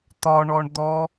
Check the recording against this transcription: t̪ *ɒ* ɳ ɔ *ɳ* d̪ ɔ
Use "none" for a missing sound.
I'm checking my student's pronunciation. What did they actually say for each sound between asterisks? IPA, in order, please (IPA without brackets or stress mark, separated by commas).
ɒ, ɳ